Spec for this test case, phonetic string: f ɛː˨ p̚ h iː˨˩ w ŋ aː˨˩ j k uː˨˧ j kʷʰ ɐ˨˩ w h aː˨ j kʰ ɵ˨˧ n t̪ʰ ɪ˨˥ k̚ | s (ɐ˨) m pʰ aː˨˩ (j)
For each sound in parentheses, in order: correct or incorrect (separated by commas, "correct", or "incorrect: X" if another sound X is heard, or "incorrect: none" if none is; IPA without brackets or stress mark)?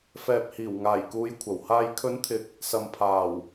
correct, incorrect: w